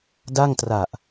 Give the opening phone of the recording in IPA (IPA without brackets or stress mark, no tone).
d